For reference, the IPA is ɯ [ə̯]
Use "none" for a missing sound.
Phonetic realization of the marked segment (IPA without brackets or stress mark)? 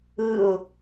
ʊ̯